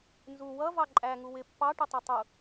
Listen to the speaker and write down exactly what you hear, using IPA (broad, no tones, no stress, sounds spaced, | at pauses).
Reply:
n z u w ʌ v ɑ ǃʼ æ ŋ u w ɪ pː ɑ ʈ ɪ tˤ ʌ tˤ u